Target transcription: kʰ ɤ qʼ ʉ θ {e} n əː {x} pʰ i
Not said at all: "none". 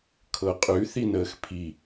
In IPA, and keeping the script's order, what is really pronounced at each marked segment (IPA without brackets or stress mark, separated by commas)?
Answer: i, x